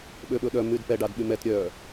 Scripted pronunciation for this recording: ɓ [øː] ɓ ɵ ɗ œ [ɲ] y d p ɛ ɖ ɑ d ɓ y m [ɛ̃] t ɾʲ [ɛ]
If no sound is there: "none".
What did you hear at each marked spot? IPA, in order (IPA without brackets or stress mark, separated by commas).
ø, m, ɛ, œ